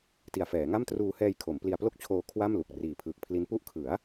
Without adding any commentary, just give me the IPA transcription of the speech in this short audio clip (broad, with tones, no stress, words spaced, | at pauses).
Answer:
ti˨˩a̯fɛː˩˦ŋa˥˩m truː˧hɛː˧jkʰo˩˦m pli˧a̯ plo˥˩k̚t͡ɕʰoː˧ kʰwa˥˩mlu˨˩k̚ riː˨˩pʰɯː˨˩k̚pʰli˦˥n pu˦˥ʔkʰɯ˩˦a̯